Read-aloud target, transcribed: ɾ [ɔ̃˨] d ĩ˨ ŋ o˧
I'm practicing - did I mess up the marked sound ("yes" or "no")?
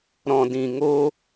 no